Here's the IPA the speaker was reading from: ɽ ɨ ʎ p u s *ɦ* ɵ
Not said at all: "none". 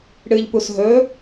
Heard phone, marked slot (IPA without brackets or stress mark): ɦ